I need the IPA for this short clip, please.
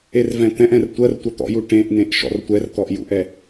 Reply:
e r v ɛ̃ t̪ ɛ̃ ʔ ɛ̃ r tʷ ɜ r tʷ ɐ t̪ ɔ̰ j u ʈ ẽ ʔ n ẽ ʔ ʃ ɔ̰ r tʷ ɛ r t̪ ɔ ʔ j ṵ ʔ ɛ

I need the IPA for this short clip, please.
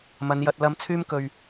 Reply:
m ɐ˨˧ n j ɐ˧ t̚ l ɐ˥ m t͡sʰ yː˥ m k ɵ˧ ɥ

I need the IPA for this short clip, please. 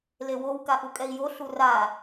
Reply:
l e w o w k a ʔ u kʼ ɛ i̯ j o ɬ u r a

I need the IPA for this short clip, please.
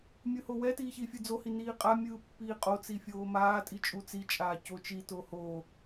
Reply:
mʲ ɯ h o w ɛ t iː ç i fʲ ɯ d͡z o h i n iː qʼ a mʲ ɯː pː iː qʼ o t͡s i fʲ oː m aː tʼ i t͡ʃʼ u t͡s i t͡ʃʼ aː c o t͡ʃ i t o h oː

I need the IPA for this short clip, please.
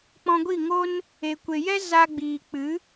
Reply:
k͡p ɔ̃˧ ɡʷ i˦˨ ŋ o˦ n | e˨ kʷ e˨ j ɛ˦ z a˧ ɡ͡b iː˨ k͡p ɨ˨˦

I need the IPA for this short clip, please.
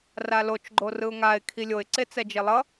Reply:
r a l o t͡ʃ ɡ͡ǃ o r ɯ ʊ̯ ŋ a ɪ̯ kʰ i lʲ o ɪ̯ ǀ e t͡s ɛ d͡ʒ e lˠ ʌ

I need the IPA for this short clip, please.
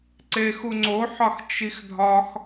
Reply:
ǀ e x u ŋ͡ǀ o ħ ɒ x t͡ʃ i x dʱ ɒ x

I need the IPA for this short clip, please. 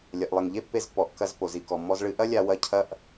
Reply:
lʲ ɐ˨ ʔ lˠ ɘ˨ ŋ ʎ e˦ pː e˧ z pː ɔ˨ ʔ k ɐ˧ z p o˨ z i˧ k ɔ˨ mː ɔ˦ z ɭ ɨ˧ ʔ ɐ˦ lʲ a˧ w ɐ˧ cʰ ɐ˦ ʔ

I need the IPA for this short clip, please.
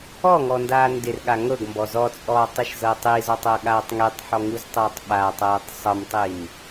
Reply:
ɔ ŋ ɔ n d aː n d ɪ r ɠ a ŋ ɤ ɡ m b ɔ z ɔ t͡sʼ ɔː tˤ i ʃ z ɤ tˤ i z ɔ tˤ ɤ ɠ aː tˤ ŋ i tˤ ħ ɔ ŋ u z tˤ ɤː tˤ ɓ a tˤ ɤː tˤ sˤ ɤ m tˤ i m

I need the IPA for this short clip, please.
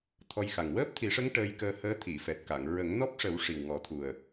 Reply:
t̪ʰ ɔ˧ j x a˨˩ ŋ w əː˦˥ p̚ t̪ʰ i˨˩˦ ʂ ə˧˥ ŋ ʈ əː˧ j k əː˧ h əː˧˥ t̪ʰ i˨˩˨ f ɛ˨˩ t̚ k a˨˩˨ ŋ ɹ ə˨˩˦ ŋ n ɔ˦˥ p̚ ʂ ə˨˩˦ w ʂ i˨˩ w ŋ ɔ˨˩˦ t̪ʰ u˨˩ ə̯

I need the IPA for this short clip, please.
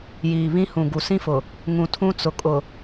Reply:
j iː˨ β ĩ˦ h ũ˨ ɡ u˨ s ĩ˦ f ʊ˨ | ŋ ũ˨ tʰ ũ˦ t͡s ʊ˨ kʼ ʊ˨

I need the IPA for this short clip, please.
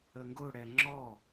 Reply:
ə ŋ ɡ ʊ ɽ ɛ ŋ͡ǁ ɔ

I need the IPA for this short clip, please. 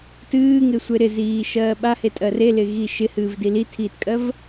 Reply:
t ɨː ŋ ɪ sʷ e ɾ ɪ z iː ʃ ɜː ɓ a h e tʼ ɜ r e l ɪ ɣ i ʃ ɪ h ɨː v d i l i tʰ iː t kʼ ɜ v

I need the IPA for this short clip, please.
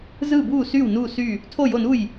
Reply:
z ɯ˥˨ b uː˥˨ s yː˥˨ w n uː˥˨ s y˥˨ | tʰ o˥˨ j o˥˨ n u˥˨ j

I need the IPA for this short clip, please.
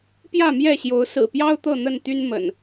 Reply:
p j ä˥˨ m j ɛ˥˨ ɕ j o˨˦ ʊ̯ s ɹ̩˨˩ p j ɑ˦ ʊ̯ t̪ ɤ˥˨ n̪ ə˥˨ n t̪ y˦ n m ə̰˨˩ n

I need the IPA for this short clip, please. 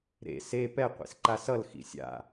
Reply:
ɾ ḛ s e p ɛ qʷ ḭ s ǃ a s ʌ l x ḭ sʲ a̰

